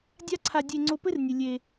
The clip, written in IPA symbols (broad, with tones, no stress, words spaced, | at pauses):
dʲa˦ǀʰa˧ dʲe˧ŋ͡ǀo˧ pɘ˦rnʲɨ˨ lʲe˧